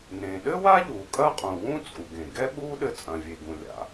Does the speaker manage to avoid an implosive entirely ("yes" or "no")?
no